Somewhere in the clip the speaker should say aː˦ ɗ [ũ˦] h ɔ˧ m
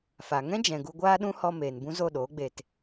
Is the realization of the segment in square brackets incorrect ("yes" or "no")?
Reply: no